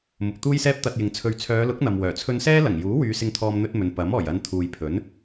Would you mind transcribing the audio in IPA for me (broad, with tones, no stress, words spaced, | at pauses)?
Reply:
mʊ˨k̚t̪uː˥jsɛː˥p̚ t̪ɐ˧t̚jɪ˨ŋt͡sʰɵ˧ɥ t͡sʰœː˨˧lʊ˨˥k̚ n̪ɐ˨mwœː˨˩ t͡sʰɵ˧nsɛː˥lɐ˨˩ŋjuː˨˥ wyː˨˧sɪ˧ŋt̪ʰɔː˧m n̪ɵ˥t̚mɵ˨˧n pɐ˨˥m ɔː˨˩jɐ˨˧n t̪ʰuː˨jpʰɵ˨˥n